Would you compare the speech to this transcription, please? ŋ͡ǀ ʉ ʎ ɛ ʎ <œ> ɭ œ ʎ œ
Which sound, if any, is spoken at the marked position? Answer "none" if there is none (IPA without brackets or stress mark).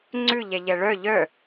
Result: ɛ